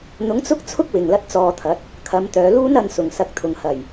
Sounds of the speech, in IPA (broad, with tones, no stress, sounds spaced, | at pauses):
n̪ ʊ˨˥ ŋ t͡s ʊ˥ k̚ t͡sʰ ʊ˥ k̚ w ɪ˨ ŋ l ɐ˥ t̚ t͡s ɔː˧ t̪ʰ ɐ˨˥ t̚ | kʰ ɐ˨˧ m t̪ œː˨˧ l uː˥ n ɐ˧ n s ʊ˨ ŋ s ɐ˧ k̚ t̪ʰ ʊ˨ ŋ h ɐ˨˩ j